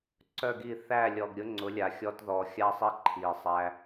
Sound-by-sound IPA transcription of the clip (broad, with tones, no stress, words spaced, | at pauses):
ǀœ˦˨ɡi˦˨ θæ˦˨lʲɔ˨ɡɾʲʊ˦ ŋ͡ǀʊ˨˦lʲa˨ xʲɔ˦tðɔ˧ xʲa˦sˤi˦ ǃʰi˨sˤæ˧